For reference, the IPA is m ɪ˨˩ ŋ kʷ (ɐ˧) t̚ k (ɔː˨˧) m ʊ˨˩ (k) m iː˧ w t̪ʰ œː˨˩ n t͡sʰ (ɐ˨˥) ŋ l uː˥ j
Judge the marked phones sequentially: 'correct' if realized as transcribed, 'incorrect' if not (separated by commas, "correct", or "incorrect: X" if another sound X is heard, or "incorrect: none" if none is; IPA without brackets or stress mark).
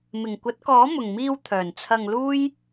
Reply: incorrect: ɐ˨˥, incorrect: ɔː˨˥, incorrect: ŋ, incorrect: ɐ˧